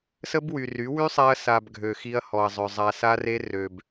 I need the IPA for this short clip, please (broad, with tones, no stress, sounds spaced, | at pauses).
s ə˦ b w y˨ r y˨˦ w y˦ sˤ ɛ˧ ɐ̯ s a˨ b ɡʱ ø˨ x i˧ ɐ̯ h ɔ˨ ɐ̯ zˤ œ˨ zˤ a˧ s a˦ r e˦ r ø˨ b